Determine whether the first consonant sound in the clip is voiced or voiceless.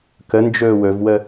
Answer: voiceless